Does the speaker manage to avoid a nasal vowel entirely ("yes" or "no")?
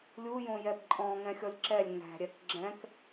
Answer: no